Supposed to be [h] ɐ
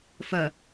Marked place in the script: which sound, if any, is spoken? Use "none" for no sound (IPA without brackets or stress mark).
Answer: f